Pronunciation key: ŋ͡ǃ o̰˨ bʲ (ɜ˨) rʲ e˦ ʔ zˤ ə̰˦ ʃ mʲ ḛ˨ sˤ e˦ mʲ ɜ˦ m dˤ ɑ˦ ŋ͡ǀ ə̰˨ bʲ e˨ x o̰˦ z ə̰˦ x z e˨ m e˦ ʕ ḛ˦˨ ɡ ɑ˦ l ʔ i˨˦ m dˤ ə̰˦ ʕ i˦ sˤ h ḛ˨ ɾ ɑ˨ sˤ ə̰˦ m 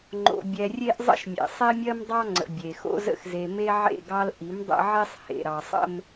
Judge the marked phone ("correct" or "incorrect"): incorrect